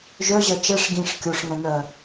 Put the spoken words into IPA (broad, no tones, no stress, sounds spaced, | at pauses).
ʒ œ ʑ ɜ t͡ʃ ɛ ʂ ɡ ĩ ʂ kʲ o ʂ ŋ ɛ̃ n ɜ